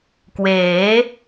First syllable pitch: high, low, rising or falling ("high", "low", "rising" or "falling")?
rising